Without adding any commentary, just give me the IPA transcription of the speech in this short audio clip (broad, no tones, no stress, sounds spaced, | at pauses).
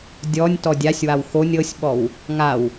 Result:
dʲ ɔ nʲ t ɔ dʲ a sʲ w a w x o nʲ ɤ sʲ ɓ ɔ w | ŋ a w